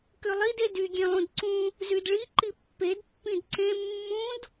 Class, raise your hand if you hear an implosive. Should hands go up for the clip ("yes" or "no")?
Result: no